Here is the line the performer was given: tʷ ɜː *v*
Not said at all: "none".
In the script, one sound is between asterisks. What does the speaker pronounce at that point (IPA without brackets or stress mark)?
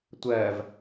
v